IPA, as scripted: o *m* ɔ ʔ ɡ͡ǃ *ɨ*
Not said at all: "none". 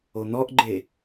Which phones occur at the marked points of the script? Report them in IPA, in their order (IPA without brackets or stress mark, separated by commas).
n̪, e